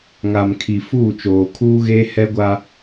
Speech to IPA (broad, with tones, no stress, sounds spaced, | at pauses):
ŋ a˨ m kʰ i˨ f uː˦˨ t͡ʃ oː˨ kʰ uː˦ ɣ eː˦ h ɛ˦ ɡʷ a˦